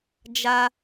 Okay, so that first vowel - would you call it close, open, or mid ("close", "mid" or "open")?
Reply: open